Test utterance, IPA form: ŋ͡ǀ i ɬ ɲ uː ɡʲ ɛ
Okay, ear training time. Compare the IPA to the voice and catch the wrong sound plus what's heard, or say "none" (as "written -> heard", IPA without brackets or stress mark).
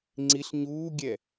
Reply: none